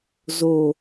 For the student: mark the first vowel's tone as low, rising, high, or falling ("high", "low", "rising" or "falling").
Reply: low